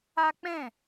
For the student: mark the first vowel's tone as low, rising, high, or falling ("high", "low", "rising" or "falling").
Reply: high